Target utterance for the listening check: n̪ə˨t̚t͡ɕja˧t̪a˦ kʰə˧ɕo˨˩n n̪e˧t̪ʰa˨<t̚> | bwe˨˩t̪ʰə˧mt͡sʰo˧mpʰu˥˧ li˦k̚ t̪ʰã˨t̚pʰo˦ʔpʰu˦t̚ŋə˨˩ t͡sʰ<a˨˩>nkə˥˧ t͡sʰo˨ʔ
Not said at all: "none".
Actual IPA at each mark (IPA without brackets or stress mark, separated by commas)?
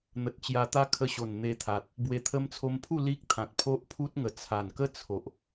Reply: t̚, a˨˩